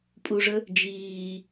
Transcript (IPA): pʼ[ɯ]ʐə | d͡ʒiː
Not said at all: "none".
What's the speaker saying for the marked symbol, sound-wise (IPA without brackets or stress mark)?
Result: u